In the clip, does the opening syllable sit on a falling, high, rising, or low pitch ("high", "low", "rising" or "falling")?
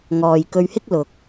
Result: low